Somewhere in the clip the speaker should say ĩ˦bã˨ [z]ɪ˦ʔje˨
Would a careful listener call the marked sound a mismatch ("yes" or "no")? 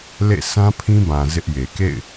no